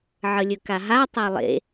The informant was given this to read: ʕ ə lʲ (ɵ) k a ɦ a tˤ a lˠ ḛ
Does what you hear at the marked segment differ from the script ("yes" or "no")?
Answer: no